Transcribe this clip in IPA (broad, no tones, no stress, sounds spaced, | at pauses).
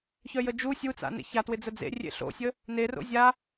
ç œ j ə d͡ʒ u sʲ u t͡s a̰ n ḛ ç a t w ɪ d͡z ə d͡z ḛ rʲ ḛ ɬ o̰ sʲ ə | n e r o̰ zʲ a